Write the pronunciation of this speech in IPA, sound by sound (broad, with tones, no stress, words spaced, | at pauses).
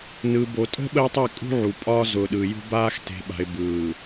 nɯ˨bo˨tʼə̤˦ ɓə˦jtˤi˦˨kʼṳ˦ ʕu˨pʼɒː˦ zʊ˨ɗɯ˨jṳ˦baː˦x te̤˨ɓa̤˨ɪ̯ bɯː˨